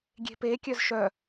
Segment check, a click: absent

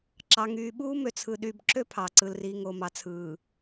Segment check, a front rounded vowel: present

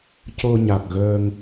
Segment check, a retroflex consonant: absent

